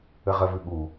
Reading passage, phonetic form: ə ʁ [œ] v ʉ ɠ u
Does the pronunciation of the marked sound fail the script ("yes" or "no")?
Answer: yes